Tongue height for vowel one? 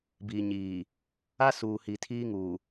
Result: high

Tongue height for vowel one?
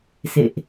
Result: mid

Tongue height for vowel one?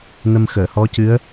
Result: mid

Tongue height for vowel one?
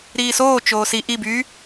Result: high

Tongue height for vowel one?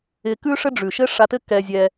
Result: high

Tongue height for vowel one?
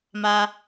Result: low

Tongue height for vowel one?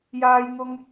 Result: low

